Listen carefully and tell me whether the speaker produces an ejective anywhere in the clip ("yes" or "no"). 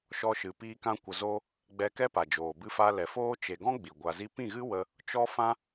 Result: no